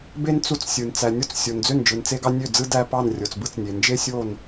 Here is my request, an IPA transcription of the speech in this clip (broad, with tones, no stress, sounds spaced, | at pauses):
b e˥ n t͡s u˥ t͡s sʲ ɯ˧ n t͡s æ˧ nʲ o˥ t͡s sʲ o˧ n d͡z ø˥˧ n d͡ʒ ɯ˧ n t͡s e˥ ɡ ɑ˥ nʲ ø˥˧ d͡z ɯ˥ d æ˥ p ɑ˥˧ n rʲ o˧ t͡s b ɯ˥ t͡s nʲ e˧ n d͡ʒ e˥ sʲ o˥˧ n